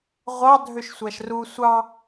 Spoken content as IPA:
ʁʷɑ dʱøʃsʷæʃru sʷɑ

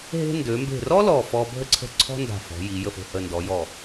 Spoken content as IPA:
ɦe̤˧ndø˩˧mbe̤˧˩rɔ˥ lɔ˧˩fɔ˧ bʱə˧ǀʰə̤˧˩ ǀʰɔ̤˥nda̤˧˩fɔ̤˩˧ ji˩˧ jə˧˩fo̤˧˩hə˧˩ndɔ˩˧ jɔ˧˩

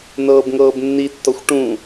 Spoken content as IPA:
nɤːbŋɤːbnːitːɔxʷ ʈũ

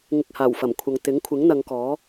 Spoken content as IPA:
ŋɪ˧k̚haː˨˩wfɐ˨˩mkʷʰɐ˨ŋ t̪ɪ˨˥ŋkʷʰɪ˨˥ŋ n̪ɐ˨˧ŋkɔː˨˥

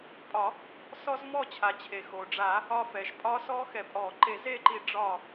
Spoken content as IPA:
pʼɒ˨˩˦ | sɔ˦˥zmɔ˥˨t͡ɕʰa˩t͡ɕʰe˩ xo˩ɖ͡ʐa˨˩˦ | ɒ˧fɛ˩ʃ pʼɒ˦˥sɔ˦˥xɛ˨˩˦pʼɔ˨˩˦ ǃe˨˩˦z e˥˨ǃi˧ ɖ͡ʐɒ˧˩

